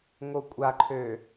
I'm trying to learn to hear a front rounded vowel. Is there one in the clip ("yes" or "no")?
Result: yes